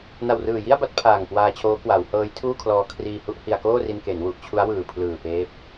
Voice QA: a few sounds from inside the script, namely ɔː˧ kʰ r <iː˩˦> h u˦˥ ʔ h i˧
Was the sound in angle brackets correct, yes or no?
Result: no